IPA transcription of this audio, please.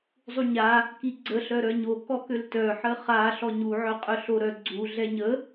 zˤ u ɲ a | k i ɡ͡ǀ ə ɬ œ ɾ œ ɲ o k ɔ k ø l t œ ħ ə χ a ɬ ɔ ɲ u ʕ œ qʼ œ ɬ o ɾ œ ɡ͡ǀ u ɮ ɛ ɲ ə

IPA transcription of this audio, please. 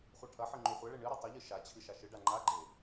χʷ a ʈʰ ɐ ħ ɨ ŋ͡ǃ ʉ χʷ ɐ ɭ e ɳ ɨ ɾ ʉ tˤ ɐ ʎ ɨ ʃ a t͡ɕʰ ɨ ʃ a ʃ ɨ ɖ a ŋ͡ǃ a ɡ͡ǃ e

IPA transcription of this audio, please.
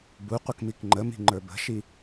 b u qʷ ə k m i k ŋ͡ǃ ə m i̤ ŋ͡ǃ ə˞ b ə̤ ʃ i

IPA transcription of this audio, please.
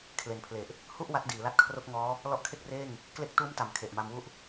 kʰ l e˩˦ n pʰ l e˨˩ ʔ | h u˥˩ ʔ w a˦˥ t̚ d iː˩˦ l a˦˥ t̚ kʰ r o˥˩ k̚ ŋ ɔː˦˥ | l ɔ˦˥ ʔ kʰ e˥˩ k̚ r eː˥˩ ŋ | k l e˦˥ k̚ t uː˦˥ m t a˨˩ m kʰ e˨˩ ʔ m a˧ m w u˦˥ ʔ

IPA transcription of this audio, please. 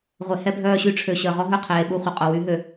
ʁʷ e˨˦ h ɛ˦ bʱ œː˦˨ ɕ y˦ ʈ͡ʂʰ ø˨ ɕ əː˨ ʁ ɔ˦ ɦ œ˦˨ qʰ eː˨ ɓ u˦˨ χʷ ə˨ qʼ o˨ w y˨˦ ɦ ø˨

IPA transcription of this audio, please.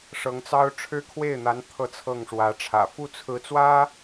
ʂ ɤ˧˥ ŋ t͡s ɑ˥ ʊ̯ ʈ͡ʂʰ ɻ̩˥ kʰ w e˥˩ ɪ̯ n̪ a˧˥ n t̪ʰ ɤ˥˧ t͡sʰ ɤ˥˩ ŋ ʂ w ä˧˥ ʈ͡ʂʰ ä̰˨˩ f u˥˩ t͡sʰ ɹ̩˧˥ t͡s w ä˥

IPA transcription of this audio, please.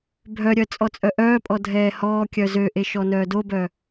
bʱ œ ɾʲ œ t͡sʼ ɔ t͡sʼ œ ʔ œː pʼ ɔ dʱ ɛː h ɔː kʲ œ z ø ʔ e ʃ ɔ n œː d o b œ

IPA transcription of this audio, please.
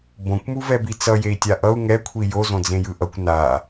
b õ kʷ m u v ɛ b i t͡s ʌ j e i̯ tʲ a ʔ ʌ u̯ ŋ ɛ kʷʰ i j o z õ d͡z ẽ j ɯ ʔ ʌ kʷ n a

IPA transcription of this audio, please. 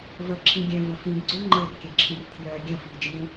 v ə ǁʰ ĩ ɡʲ œ̃ v ə̃ f ĩ ɡ ɡ͡ǀ ø ŋ͡ǃ ə r kʲ ə̃ ǁʰ ĩ r tʰ j œ ɡʲ ə̃ f i d͡ʒ ĩ

